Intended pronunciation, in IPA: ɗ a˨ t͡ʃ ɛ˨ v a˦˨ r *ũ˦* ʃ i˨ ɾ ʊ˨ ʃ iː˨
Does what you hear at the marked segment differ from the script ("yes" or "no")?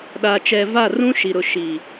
no